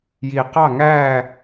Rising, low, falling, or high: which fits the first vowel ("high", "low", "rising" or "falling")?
low